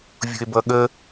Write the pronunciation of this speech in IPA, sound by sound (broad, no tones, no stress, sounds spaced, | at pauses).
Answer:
vʲ ṳ e̯ b ʌ ɠ ə